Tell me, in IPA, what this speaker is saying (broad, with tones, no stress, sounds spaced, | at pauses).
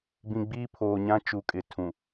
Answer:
b ĩ˨ ɡ͡b iː˦ pʰ oː˨ ɲ ã˦ t͡ʃ u˨ kʼ ɪ˨ tʰ ũ˨